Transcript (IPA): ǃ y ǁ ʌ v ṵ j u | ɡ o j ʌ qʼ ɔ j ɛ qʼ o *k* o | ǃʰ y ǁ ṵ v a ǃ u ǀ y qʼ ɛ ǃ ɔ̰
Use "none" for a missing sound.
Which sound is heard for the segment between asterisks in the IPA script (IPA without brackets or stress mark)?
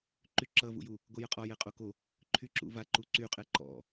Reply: k